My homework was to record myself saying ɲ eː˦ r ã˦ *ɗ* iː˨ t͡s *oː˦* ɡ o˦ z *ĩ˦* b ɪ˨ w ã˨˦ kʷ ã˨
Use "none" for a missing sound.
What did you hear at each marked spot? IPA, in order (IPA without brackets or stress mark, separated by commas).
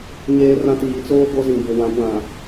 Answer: t, oː˦, ĩ˨